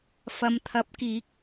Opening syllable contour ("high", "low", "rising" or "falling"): low